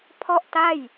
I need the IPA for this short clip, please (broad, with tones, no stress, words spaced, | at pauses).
pʰɔ˥˩ʔta˥˩j